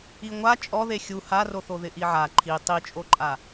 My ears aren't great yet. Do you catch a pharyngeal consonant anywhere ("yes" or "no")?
yes